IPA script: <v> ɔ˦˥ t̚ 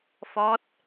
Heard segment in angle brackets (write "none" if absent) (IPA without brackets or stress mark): f